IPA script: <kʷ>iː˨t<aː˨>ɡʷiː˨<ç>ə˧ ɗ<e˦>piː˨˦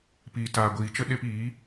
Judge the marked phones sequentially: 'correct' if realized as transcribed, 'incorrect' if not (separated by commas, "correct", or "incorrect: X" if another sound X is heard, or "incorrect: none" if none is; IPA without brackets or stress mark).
incorrect: p, correct, incorrect: t͡ʃ, incorrect: e˧